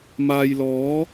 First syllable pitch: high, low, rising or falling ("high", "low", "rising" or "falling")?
low